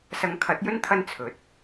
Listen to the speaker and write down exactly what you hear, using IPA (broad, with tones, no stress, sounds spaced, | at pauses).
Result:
s ɐ˨˧ ŋ kʰ ɐ˨˥ t̚ j ɵ˥ n t̪ʰ ɐ˥ n t͡sʰ ɵ˨˥ t̚